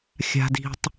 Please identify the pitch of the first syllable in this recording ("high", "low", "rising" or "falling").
high